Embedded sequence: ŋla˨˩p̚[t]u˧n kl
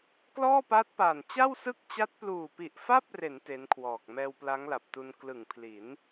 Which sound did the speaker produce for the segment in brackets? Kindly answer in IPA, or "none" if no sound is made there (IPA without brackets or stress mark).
t